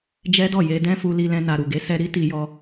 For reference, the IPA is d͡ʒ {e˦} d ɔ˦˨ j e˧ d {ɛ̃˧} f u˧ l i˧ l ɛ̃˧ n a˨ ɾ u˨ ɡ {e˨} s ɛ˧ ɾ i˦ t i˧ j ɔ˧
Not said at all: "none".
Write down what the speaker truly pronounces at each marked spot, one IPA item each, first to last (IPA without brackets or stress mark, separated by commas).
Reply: ɛ˦, ɛ̃˦, e˨˦